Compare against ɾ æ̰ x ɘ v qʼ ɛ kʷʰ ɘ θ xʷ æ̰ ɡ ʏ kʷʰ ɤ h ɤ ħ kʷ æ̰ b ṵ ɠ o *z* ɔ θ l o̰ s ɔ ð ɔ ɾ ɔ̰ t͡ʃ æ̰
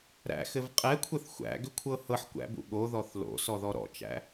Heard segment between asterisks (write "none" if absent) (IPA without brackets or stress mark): ð